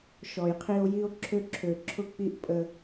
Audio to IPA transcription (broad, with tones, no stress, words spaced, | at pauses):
ʃɔ˨jqʰi˦o̯ ji˦o̯ǁʰø˦ ǁʰø˨ǁʰʊ˦k͡pi˦ʔ pʼə˦